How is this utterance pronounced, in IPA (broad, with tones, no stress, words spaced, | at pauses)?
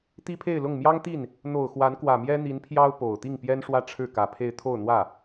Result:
t̪i˥pʰe˥˧ɪ̯lʊ˥˩ŋ mjɑ˥ŋt̪i˥˩n | n̪o˨˩ʊ̯ xwa˧˥nkwä˨˩mjɛ˥ n̪i˧˥npʰjɑ˥ʊ̯ po˨˩ʊ̯ t̪i˥˩ŋpjɛ˥n ʂwä˥ʈ͡ʂʰɻ̩˥˩kä˨˩pʰe˥˧ɪ̯ t̪ʰo˥˧ʊ̯n̪wä˥˩